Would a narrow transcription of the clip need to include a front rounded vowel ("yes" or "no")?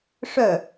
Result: yes